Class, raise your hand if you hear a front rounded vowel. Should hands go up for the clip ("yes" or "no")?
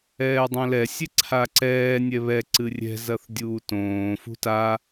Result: no